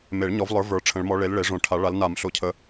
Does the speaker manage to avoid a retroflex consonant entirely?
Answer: no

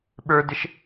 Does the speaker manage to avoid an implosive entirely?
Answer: no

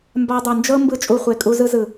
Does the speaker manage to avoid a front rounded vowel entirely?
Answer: yes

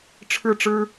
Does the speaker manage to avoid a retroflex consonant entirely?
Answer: no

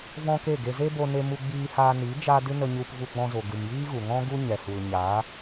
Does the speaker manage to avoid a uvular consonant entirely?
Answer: yes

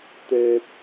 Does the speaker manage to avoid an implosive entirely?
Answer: yes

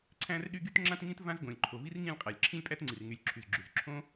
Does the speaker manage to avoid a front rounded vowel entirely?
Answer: no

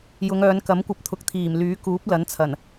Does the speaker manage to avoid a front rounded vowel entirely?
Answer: no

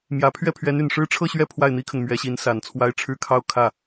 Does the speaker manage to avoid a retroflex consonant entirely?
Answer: no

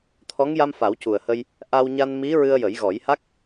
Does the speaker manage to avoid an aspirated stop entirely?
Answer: no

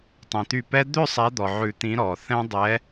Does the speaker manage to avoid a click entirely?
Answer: yes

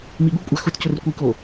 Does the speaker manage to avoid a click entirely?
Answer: yes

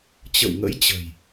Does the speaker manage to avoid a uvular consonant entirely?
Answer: yes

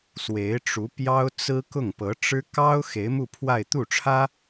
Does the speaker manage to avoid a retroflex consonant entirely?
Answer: no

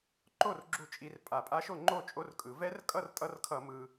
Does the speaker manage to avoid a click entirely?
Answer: no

